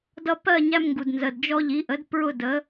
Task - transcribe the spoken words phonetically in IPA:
dʌ˧ pɜ˥˨ɲæ˧mŋɡu˩d nzə˩dd͡ʒɔ˧ ʎi˩˥ʔə˩˥d pɹʊ˥˨də˩˥

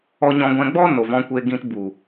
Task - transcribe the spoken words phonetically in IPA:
ɔ˧ ɲɔ̃˧ ɡʷɛ̃˧ɡ͡bɔ˦ no˨vɔ̃˧kʷe˧ɡĩ˧t bu˨

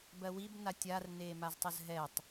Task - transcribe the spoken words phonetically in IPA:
bɜwib natʲar neːmaztˤəzɦɛtˤ

